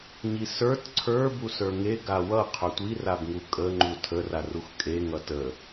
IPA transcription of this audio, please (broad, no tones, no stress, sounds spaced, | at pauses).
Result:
ɲ i s ə˞ t ǀʰ ə˞ b u s ə˞ ŋ e ɡ a w ʌ qʰ ɵ tʷ i r a b ŋ u kʼ ə ŋ͡ǃ u tʰ ə r a r u x kʼ e ŋ ʌ t ə